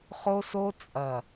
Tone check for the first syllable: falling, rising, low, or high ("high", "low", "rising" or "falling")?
high